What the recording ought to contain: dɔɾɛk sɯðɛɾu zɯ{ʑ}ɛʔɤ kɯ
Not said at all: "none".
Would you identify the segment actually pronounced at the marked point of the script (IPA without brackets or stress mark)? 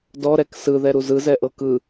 z